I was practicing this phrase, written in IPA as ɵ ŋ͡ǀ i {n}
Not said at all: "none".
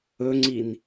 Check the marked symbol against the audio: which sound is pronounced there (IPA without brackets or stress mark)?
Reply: n